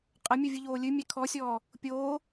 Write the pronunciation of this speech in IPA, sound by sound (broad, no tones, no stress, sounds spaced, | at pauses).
qʼ ɐ mʲ u vʲ ɨ ʎ oː lʲ ɨ mʲ ɛ kʰ ɔ sʲ ɔː | pʲ oː